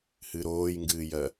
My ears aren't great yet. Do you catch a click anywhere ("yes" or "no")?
no